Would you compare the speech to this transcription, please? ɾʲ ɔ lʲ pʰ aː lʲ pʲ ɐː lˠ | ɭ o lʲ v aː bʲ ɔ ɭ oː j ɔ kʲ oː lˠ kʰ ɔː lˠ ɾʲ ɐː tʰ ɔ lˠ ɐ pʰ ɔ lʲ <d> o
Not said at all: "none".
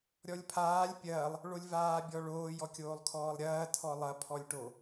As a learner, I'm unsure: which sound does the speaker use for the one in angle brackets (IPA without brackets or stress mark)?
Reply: ʈ